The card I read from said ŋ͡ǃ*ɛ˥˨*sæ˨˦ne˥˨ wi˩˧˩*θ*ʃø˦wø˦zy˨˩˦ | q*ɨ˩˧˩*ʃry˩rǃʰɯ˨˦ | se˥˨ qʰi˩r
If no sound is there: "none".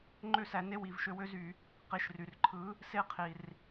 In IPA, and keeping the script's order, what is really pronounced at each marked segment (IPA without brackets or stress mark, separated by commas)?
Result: ø˥˨, v, i˩˧˩